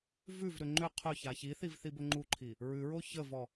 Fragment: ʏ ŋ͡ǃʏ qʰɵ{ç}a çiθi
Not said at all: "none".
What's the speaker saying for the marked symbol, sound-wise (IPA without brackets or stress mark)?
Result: ç